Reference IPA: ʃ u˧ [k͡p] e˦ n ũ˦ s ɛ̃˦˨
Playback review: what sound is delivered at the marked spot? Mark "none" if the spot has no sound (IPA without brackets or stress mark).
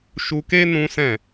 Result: k